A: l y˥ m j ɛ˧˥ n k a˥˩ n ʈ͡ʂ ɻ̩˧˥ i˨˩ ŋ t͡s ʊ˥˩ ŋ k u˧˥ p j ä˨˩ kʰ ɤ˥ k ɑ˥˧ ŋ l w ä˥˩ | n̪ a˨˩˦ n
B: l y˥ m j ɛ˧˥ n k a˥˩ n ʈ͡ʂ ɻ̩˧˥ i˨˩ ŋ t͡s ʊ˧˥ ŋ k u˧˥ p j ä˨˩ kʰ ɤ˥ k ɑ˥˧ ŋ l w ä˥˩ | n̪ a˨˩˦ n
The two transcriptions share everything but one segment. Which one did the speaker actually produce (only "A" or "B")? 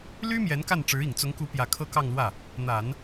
B